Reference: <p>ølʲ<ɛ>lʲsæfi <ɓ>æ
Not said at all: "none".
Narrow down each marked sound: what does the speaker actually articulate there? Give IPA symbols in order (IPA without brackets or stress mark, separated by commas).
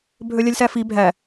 bʱ, ɛ, bʱ